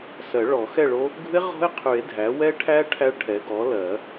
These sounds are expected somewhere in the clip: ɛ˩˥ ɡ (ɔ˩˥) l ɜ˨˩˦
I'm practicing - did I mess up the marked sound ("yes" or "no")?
no